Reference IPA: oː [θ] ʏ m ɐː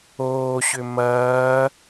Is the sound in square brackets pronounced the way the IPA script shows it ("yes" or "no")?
no